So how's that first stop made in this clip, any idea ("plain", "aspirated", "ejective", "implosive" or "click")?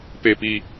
plain